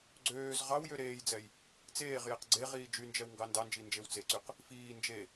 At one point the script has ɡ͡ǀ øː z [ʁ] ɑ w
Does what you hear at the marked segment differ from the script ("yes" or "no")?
no